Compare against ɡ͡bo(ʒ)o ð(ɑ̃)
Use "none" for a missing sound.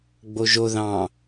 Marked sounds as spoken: ʒ, ɑ̃

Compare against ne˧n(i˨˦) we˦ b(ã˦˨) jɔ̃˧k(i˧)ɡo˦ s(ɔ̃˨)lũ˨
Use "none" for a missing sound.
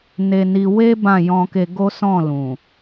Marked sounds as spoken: i˧, ã˦˨, e˧, ɔ̃˦˨

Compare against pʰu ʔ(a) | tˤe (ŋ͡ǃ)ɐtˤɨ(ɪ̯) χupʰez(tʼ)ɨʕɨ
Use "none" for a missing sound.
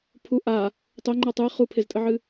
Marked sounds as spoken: a, ŋ͡ǃ, ɪ̯, tʼ

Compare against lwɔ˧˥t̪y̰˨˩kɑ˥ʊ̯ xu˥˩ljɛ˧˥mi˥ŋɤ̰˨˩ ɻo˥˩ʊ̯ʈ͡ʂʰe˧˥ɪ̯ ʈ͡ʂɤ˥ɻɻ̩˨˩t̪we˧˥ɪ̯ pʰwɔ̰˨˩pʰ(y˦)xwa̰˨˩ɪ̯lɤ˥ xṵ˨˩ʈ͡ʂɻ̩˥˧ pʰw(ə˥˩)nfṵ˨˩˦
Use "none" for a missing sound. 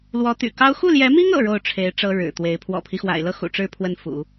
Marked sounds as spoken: i˦, ə˥˩

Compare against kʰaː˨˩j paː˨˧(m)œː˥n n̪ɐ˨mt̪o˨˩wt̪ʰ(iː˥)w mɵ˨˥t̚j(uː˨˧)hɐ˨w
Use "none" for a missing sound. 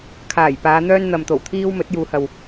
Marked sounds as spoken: n̪, iː˥, uː˨˧

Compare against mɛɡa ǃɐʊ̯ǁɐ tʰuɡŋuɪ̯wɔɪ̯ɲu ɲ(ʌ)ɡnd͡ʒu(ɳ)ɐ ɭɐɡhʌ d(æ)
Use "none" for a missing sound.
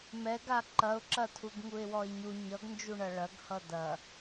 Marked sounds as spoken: ʌ, ɳ, ɐ

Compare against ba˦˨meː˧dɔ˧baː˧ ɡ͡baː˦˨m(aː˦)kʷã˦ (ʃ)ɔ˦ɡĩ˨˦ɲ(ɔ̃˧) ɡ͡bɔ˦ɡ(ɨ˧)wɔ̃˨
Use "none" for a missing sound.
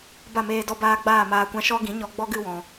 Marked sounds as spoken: aː˧, ʃ, ɔ˧, ɨ˧

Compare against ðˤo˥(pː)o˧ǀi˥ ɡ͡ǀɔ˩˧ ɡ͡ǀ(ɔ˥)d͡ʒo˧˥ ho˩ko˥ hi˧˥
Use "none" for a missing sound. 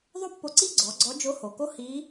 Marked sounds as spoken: pː, ɔ˧˥

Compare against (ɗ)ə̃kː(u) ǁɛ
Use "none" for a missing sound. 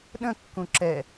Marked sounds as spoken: ɗ, ũ

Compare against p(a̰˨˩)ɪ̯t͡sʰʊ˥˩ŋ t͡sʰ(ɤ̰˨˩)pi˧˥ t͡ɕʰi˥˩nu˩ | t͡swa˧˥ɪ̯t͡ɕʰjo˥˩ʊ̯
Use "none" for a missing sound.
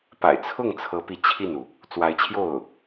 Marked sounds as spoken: a̰˨˩, ɤ˧˥

